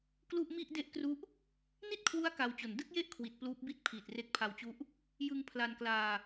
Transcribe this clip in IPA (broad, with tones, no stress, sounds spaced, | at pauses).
k l u˥˩ ʔ m i˥˩ ʔ d e˥˩ ʔ k r u˦˥ ʔ | n i˥˩ t̚ kʰ w u˦˥ a̯ k a˧ w t͡ɕ o˨˩ n d ɯ˥˩ k̚ j e˥˩ ʔ kʰ w i˨˩ t̚ p l uː˦˥ p̚ b i˥˩ t̚ pʰ iː˨˩ t̚ r e˦˥ k̚ pʰ a˧ w t͡ɕ u˦˥ ʔ | j ɯ˧ ŋ pʰ l a˧ n k l aː˧